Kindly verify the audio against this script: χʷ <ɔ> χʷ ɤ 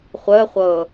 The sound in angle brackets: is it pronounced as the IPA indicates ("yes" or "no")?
no